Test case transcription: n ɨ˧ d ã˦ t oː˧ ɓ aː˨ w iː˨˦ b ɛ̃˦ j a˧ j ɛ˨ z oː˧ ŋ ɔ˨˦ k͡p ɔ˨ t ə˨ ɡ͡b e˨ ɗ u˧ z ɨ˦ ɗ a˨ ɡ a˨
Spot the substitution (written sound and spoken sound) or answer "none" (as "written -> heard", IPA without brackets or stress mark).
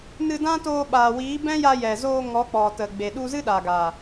none